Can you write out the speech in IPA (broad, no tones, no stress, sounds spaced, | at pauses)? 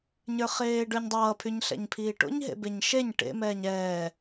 ɲ ə˞ χ eː ɖ ə˞ ɲ dˤ ʌː pʰ y ɲ ɬ ɛ̰ ɲ pʰ iː ʈ o̰ ɲ ɦ ḛ b e ɲ ʃ e ɲ ʈ ḛ m ɛː ɲ ɛː